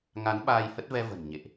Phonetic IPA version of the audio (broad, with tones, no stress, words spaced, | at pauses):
ŋa˨˦n ɓaː˧jhə˦˥t̚vɛ˧ və̤˨˩n ɲḛ˧˨ʔ